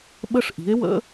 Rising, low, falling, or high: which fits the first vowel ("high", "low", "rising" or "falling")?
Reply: high